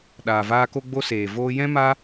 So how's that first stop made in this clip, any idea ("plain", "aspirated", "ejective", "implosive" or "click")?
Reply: implosive